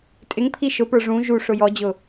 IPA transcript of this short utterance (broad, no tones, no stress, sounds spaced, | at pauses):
tʼ ɪ ŋ pʰ i ʃ ʊ p ə˞ ʐ ũ ʒ u ʂ ʊ j ɔ d͡ʑ ʊ